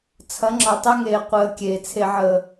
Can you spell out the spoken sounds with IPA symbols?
t͡sʰɐ˨˦ŋ͡ǁɒ˨tˤɛ˦ŋeː˨ qʷəː˨ kʲeː˨ t͡sʰe˨ʕəː˨

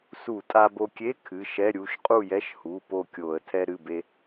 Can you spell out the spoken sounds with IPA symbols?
su˧˩˧tʼa˧bo˧kʲe˧˥˧ kʰɨ˩˧˩ʃɛ˧˥˧ɾʲu˩˧˩ʃ qʼu˥˨jɛ˧˥˧ʃhu˩˧˩ po˥˨kʲo˧˩˧ə̯ tʰɛ˧ɾɨ˩˧˩be˧

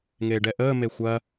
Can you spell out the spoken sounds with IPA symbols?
ŋeːɖɛʔəː mexʷɐ

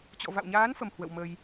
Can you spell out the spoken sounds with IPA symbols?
t͡ɕɔ̰˧˨va̰˧˨wɲaː˨˦nfə˨˩m hwə̰˧˨wmə˧j

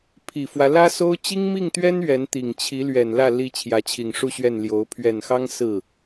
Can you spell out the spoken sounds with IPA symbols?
pʰi˨˩fwä˦ lä˥so˥ʊ̯ t͡ɕi˥ŋmi˥˩ŋt̪ɥɛ˥n ɥɛ˧˥nt̪i˨˩ŋt͡ɕʰi˧˥lɥɛ˨˩n lä˥˩ li˧˥ t͡ɕʰjä˧˥t͡ɕʰi˨˩ŋʂu˥˧ɕɥɛ˥˩n ljo˧˥ʊ̯ pʰɥɛ˨˩nxɑ˥ŋ sɹ̩˥˩

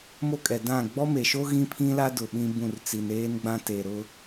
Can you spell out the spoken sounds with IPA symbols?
mo˦kʼɛ˨ dã˦˨ ɡ͡bɔ˦me˨ʃo˦ ɣĩ˦pʰĩ˦la˦dʊ˨ ɓĩ˦bũ˦˨rt͡si˨n eː˦nɡ͡bã˦te˨ɾʊ˦

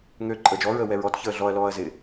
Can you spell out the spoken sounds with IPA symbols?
ŋø ǃʼəːd͡ʒɔɹəː wɛɹɔtçəː ɮɔɐ̯lɔːɐ̯ zɪ

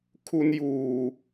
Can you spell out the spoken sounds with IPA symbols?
kʰu˧njuː˨˩

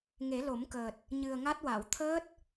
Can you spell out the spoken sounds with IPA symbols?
ŋe˨˩˦lo˨˩˦mkəː˨˩t̚ | ɲɨ˨˩ə̯ŋa˦˥t̚wa˨˩˨w t̪ʰəː˦˥t̚

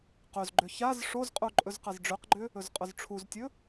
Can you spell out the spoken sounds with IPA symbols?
qɵzɡ͡ǃʏ çaz ʂozqʼu ǃʼɵzqazɖ͡ʐøqɡ͡ǃʏ | ɵzqʼʊzʈ͡ʂʰuztʲɵ

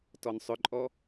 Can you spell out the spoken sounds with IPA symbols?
tɔnsˤʏǃʼɔ

